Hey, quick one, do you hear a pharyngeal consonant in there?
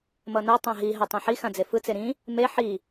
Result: yes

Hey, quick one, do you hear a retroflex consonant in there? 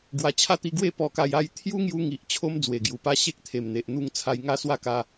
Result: no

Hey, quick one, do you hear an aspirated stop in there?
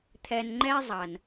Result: yes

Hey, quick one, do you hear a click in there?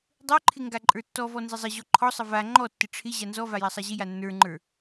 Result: yes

